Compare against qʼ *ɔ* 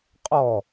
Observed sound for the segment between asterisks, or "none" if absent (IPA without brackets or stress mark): ɔ